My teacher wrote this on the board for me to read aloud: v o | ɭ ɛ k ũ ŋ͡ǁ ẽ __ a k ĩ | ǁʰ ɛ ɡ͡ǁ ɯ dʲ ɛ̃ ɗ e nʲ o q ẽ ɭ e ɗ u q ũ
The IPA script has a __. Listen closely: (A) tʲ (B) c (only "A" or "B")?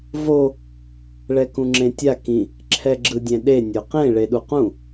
A